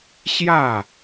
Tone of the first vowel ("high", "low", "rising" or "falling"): falling